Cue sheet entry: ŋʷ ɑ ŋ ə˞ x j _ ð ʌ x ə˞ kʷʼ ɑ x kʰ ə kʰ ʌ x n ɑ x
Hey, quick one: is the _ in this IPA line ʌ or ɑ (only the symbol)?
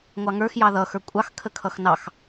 ɑ